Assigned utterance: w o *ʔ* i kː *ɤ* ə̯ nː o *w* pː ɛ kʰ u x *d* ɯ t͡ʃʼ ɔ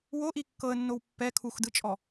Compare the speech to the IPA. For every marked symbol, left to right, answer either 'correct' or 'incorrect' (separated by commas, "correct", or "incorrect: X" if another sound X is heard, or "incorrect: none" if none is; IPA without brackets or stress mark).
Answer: correct, correct, correct, correct